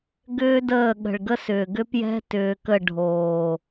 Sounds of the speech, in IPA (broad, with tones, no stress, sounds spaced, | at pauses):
ɡ ʏː˦ d əː˦˨ ɠ ə̤˨ ɭ ɡ ə˦ s ʏː˨ ɡ ʏ˦ p j ɛ̤˦ t ʏː˧ k ə˦˨ ɖʱ oː˨